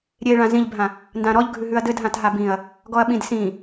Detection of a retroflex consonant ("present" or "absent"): present